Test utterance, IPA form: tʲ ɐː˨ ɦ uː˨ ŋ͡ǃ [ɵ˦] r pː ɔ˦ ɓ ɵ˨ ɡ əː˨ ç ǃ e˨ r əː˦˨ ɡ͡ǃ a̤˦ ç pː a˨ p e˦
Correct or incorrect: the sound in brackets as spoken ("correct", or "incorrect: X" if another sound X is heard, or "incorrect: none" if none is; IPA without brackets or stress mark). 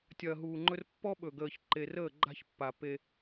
correct